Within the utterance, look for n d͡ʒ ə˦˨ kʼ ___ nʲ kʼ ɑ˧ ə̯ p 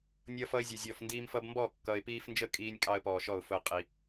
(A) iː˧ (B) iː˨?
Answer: A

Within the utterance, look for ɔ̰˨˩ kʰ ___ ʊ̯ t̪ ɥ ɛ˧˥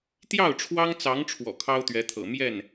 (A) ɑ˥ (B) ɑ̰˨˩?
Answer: A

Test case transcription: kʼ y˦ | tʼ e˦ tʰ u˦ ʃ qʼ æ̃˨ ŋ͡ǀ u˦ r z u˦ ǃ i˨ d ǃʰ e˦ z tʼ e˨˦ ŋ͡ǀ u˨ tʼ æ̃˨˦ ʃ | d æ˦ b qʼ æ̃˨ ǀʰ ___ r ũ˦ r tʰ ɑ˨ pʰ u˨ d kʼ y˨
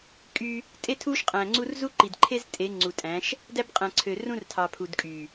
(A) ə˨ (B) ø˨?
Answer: B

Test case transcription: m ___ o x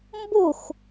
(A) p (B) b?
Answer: B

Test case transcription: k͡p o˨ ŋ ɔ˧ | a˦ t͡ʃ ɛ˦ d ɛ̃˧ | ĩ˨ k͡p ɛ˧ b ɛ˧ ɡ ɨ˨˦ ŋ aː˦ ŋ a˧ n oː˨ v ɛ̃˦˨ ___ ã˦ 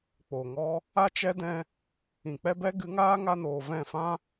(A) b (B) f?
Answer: B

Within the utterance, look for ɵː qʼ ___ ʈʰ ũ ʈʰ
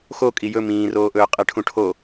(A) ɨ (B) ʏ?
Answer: A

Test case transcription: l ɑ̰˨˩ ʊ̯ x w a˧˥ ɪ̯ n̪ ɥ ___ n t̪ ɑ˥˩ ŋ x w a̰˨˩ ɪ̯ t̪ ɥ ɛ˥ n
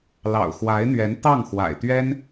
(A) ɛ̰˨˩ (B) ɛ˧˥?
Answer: B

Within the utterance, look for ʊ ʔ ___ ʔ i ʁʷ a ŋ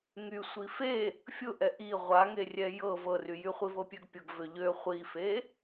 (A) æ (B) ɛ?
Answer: B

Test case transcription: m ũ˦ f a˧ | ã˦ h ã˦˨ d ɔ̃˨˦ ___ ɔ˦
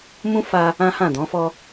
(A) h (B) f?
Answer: B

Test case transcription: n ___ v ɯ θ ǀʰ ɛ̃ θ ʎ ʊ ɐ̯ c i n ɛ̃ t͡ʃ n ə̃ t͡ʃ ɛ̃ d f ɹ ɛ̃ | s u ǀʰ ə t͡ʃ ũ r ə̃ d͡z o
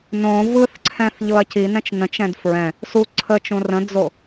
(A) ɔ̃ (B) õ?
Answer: B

